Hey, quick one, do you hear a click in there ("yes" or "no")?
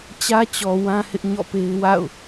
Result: no